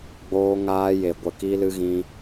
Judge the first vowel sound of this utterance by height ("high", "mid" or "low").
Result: mid